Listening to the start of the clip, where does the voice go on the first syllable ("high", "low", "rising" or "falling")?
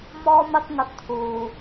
high